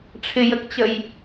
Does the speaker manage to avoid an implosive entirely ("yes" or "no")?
yes